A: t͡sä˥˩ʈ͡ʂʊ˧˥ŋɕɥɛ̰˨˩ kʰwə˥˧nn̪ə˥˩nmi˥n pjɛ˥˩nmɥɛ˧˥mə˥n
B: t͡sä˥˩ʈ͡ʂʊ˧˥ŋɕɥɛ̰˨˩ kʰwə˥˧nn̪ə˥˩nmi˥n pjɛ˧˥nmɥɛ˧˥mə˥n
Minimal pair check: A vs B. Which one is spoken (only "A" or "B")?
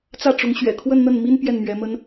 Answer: A